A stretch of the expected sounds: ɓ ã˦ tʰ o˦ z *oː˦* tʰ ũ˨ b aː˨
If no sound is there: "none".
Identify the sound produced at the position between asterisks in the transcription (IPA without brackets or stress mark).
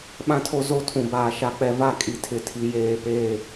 o˦